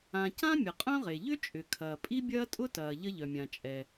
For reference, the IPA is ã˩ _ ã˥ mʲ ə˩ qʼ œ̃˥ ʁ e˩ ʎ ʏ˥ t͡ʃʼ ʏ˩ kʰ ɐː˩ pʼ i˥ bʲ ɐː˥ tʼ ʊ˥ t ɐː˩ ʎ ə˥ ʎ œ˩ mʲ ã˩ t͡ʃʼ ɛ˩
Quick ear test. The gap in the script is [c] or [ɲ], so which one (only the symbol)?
c